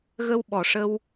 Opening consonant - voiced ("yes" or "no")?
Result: yes